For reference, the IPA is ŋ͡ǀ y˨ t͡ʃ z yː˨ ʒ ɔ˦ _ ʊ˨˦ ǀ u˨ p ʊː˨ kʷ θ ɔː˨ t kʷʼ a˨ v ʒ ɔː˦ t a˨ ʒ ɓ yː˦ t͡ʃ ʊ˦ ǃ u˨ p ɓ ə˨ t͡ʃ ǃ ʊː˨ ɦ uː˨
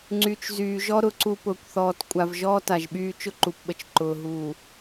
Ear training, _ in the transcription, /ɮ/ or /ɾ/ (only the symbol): ɾ